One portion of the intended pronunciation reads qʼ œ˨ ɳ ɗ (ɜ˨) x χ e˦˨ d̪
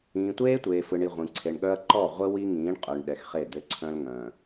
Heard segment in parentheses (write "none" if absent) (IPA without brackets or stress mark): ɛ˨